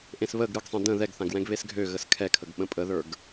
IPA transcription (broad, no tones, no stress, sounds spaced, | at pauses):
ʔ ẽ s β ə ɡ ɾ ɯ ɡ sˤ ɛ̃ d ə̃ ð ɛ ɡ θ ã ɡ w ɛ̃ ɡ β e s ɡʱ ø ɣ ə s kʰ ɛ kʰ ə ɡ ɓ ə̃ pʼ ə ð ə˞ ɡ